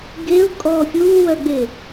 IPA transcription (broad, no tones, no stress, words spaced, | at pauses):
ɡeʊ̯ kʼɔːfʲuːwœɡ͡be